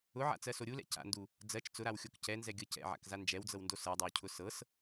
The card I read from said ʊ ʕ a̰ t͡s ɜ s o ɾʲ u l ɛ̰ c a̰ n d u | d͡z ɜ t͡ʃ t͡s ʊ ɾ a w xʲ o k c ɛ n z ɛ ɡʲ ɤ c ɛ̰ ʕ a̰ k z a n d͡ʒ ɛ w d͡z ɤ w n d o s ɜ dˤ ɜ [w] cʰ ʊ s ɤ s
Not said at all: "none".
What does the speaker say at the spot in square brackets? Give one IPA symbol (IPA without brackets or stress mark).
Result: w